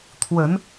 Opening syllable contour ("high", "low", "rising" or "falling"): rising